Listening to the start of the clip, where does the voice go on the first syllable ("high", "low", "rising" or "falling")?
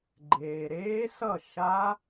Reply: low